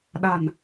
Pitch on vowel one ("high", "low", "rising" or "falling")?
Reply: low